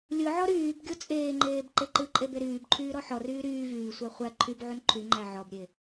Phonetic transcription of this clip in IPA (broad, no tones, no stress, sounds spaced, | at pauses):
lʲ ɯ ʕ ɔ ɾ yː b ɡʲ o t͡sʼ eː ŋ͡ǃ eː b ǃ e ǃ ɯ ǃʼ e b e ɾ yː b ǃʰ yː ɾ ɔ ħ ɔ r yː ɾ yː v yː sʷ æ χʷ æ ǃʰ y b ʕ u n ǃʰ y ŋ͡ǃ æ ʕ ɔ b ɾʲ e